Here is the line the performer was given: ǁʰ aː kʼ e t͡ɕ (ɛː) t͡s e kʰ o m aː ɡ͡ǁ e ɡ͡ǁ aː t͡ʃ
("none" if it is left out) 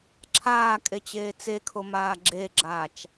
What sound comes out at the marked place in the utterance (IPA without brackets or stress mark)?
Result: eː